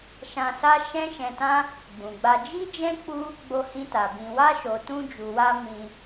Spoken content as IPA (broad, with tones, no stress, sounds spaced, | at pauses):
ʃ ã˧ s a˦ ʃ ɛ̃˦ ʃ ɛ̃˧ t ã˦ | ɡ͡b ũ˨ ɡ͡b a˧ d͡ʒ i˦ d͡ʒ ɛ̃˦ k͡p u˦ | ɡ͡b o˧ h ĩ˧ t a˨ b ĩ˨ w a˧ ʃ o˨ t ũ˧ d͡ʒ u˨ w a˧ m ĩ˧